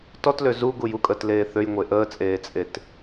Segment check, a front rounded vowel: present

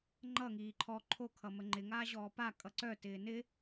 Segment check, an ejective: present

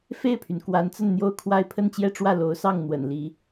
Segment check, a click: absent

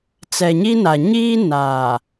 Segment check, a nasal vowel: absent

